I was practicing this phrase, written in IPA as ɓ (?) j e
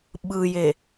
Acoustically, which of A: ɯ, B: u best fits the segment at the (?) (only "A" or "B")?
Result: A